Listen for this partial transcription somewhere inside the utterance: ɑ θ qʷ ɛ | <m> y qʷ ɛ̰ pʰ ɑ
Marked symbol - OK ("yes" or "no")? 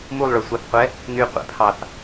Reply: no